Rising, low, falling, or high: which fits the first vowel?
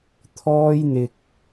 high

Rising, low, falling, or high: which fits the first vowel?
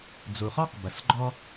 low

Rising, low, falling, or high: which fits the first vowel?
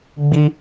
high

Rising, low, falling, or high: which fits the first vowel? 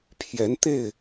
rising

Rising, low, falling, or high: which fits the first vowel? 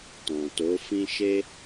low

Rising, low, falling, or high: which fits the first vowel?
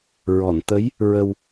low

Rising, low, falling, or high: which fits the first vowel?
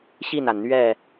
falling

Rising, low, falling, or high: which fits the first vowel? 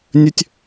high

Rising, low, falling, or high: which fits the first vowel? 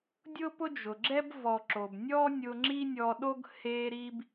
high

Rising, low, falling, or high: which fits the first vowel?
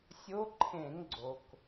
rising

